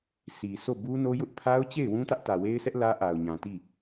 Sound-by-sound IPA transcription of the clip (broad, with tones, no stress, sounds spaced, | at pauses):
s i˨ s o˦˨ b u˦ n o˦ j ʊ˦ ʔ pʰ a˦ ʊ̯ t͡ɕ e˦˨ ɪ̯ w ũ˦ t ä˦ ʔ t ä˨ w e˦ ɪ̯ sʰ ɛ˦ ʔ l ä˦ ʔ a˨ ʊ̯ ɲ ã˨ t i˦˨